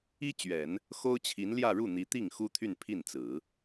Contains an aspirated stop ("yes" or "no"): yes